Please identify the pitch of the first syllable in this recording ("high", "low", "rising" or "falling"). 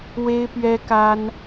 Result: high